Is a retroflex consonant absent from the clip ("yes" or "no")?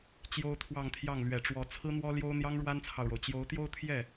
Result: no